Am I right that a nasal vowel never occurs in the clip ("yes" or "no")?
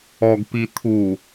yes